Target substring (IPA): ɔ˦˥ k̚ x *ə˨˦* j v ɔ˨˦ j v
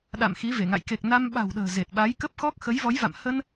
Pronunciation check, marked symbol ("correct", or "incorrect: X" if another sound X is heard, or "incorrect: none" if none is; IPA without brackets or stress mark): correct